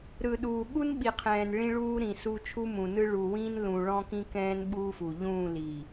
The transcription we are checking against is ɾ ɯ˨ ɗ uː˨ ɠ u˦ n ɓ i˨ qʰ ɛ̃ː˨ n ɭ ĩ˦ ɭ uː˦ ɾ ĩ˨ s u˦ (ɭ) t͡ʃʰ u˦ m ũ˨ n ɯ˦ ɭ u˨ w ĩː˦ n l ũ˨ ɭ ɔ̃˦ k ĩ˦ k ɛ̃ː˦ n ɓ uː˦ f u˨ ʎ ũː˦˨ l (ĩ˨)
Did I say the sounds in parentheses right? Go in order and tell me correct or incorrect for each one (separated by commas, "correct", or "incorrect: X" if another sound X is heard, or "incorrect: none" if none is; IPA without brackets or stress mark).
incorrect: none, incorrect: i˨